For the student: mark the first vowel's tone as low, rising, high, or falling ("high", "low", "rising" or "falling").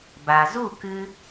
low